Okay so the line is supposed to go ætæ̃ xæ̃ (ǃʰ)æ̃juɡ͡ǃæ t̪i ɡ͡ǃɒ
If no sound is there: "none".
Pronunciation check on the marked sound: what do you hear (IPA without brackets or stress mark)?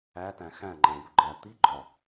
ŋ͡ǃ